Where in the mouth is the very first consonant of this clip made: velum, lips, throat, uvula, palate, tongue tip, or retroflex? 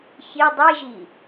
palate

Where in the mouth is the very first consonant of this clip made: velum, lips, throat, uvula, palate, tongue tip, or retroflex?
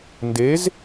tongue tip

